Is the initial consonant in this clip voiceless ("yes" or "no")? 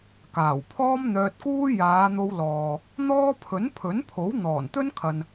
yes